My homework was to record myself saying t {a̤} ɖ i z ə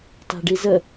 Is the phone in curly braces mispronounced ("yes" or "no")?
no